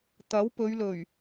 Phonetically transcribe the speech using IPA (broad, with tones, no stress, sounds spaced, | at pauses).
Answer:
t̪ ɐ˨˥ w p ɵ˨˧ ɥ l ɵ˨˩ ɥ